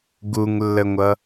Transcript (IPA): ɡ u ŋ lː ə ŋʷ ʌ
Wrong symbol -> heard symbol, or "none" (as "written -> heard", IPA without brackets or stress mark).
none